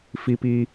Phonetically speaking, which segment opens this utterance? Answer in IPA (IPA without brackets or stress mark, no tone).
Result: f